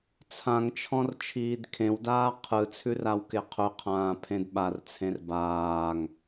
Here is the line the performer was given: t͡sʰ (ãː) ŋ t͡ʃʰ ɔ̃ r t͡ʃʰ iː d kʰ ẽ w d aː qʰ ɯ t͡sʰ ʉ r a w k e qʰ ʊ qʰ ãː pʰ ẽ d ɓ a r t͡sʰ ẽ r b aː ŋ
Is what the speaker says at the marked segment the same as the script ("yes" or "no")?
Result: no